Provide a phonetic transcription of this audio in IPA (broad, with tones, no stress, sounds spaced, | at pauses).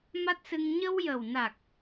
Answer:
m a˦˥ t̚ s ɨ˧ ŋ ɲ ə˧ w j ə˨˩ w n a˨˩ k̚